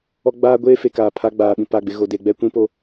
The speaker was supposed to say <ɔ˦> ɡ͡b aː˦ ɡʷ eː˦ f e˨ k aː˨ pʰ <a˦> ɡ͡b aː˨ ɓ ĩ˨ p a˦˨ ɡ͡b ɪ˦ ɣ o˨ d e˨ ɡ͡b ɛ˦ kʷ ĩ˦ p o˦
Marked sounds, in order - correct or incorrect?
correct, correct

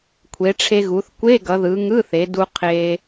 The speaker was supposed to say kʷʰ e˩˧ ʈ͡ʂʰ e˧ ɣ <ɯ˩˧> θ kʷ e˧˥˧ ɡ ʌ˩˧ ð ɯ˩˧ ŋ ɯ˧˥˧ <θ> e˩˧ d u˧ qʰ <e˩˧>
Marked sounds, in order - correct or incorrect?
incorrect: u˩˧, correct, incorrect: e˧

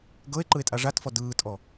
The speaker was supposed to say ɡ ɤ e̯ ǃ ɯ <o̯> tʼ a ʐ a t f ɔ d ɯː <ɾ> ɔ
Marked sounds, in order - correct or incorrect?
incorrect: e̯, incorrect: tʼ

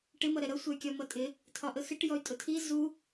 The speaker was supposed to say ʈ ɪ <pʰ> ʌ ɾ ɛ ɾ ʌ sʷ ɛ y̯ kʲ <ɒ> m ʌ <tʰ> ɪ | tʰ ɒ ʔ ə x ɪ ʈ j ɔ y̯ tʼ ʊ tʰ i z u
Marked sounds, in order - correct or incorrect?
incorrect: m, correct, incorrect: tʼ

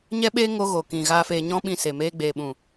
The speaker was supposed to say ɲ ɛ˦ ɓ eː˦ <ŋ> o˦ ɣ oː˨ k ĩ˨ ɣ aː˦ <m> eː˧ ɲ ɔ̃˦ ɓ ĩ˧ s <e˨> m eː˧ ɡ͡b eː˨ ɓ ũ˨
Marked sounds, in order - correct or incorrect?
correct, incorrect: f, correct

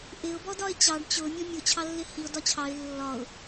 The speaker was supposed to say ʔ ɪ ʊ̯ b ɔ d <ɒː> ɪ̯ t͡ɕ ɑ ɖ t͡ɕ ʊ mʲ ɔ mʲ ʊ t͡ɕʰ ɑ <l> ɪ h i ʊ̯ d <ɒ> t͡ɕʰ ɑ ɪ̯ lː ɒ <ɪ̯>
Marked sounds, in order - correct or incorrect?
incorrect: ɒ, incorrect: lː, correct, incorrect: ʊ̯

